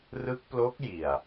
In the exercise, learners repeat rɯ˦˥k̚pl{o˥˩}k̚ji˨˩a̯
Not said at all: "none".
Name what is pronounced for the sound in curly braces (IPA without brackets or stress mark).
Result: o˦˥